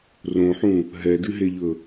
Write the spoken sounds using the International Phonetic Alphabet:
r õ ħ ũ | ɦ ɛ d ɨ ɦ e ʎ ɵ

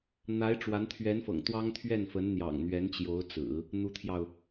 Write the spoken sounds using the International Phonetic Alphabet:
n̪ a˧˥ ɪ̯ ʈ͡ʂ w a˧˥ n t̪ʰ ɥ ɛ˧˥ n f ɤ̰˨˩ ŋ t̪ w ɑ˥ ŋ t̪ʰ ɥ ɛ˥˩ n f ə˧˥ n n̪ j ɑ̰˨˩ ŋ n̪ ɥ ɛ˧˥ n t͡ɕ j o˧˥ ʊ̯ t͡s ɹ̩˨˩˦ | n̪ u˧˥ t̪ʰ j ɑ˧ ʊ̯

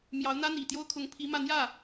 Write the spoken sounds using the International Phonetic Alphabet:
m j ɑ˧˥ ʊ̯ n̪ ä˥ n̪ i˨˩ t̪ j o˥ ʊ̯ kʰ ʊ˧˥ ŋ pʰ i˧˥ m ä˥˧ n̪ j ä˥˩

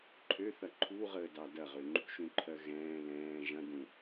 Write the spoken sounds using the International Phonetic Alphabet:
ǃʰ ø θ ɐ ǃʰ u ʁ əː d ɑ d ɐ ʁ ø ŋ͡ǃ ṳ ʃ ũ ǃʰ ɜ ɣ ɛ̃ː l ɛ̃ː ʒ ɐ̃ d ũ

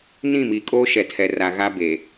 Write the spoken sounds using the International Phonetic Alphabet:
n ĩ˦˨ m iː˨ kʼ oː˦ ʃ ɛ˨ tʰ ɛ˨ r a˨ ɣ a˦ b e˨

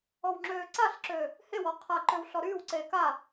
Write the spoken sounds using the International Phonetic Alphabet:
ɔ w ŋ͡ǁ øː ǀ a ɬ ǁ øː | h e w ɔ qʰ a ǃ ø w ɬ ɔ ɾ yː w ǀ eː k a

